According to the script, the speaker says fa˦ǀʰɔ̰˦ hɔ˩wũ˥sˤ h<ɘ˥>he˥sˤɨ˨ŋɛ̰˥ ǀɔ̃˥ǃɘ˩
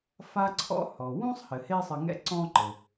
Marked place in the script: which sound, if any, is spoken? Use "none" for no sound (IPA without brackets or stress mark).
ɘ˩